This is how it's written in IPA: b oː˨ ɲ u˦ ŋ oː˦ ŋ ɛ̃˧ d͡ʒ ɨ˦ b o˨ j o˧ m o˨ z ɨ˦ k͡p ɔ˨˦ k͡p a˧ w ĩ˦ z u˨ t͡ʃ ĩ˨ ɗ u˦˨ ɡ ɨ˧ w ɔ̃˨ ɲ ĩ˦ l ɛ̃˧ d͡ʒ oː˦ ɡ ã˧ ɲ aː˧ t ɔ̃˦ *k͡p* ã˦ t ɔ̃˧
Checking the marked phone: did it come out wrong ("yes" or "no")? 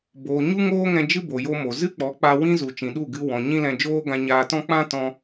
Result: no